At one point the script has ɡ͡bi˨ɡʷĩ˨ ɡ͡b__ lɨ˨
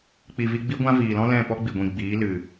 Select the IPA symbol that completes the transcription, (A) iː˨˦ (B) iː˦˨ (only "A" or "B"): A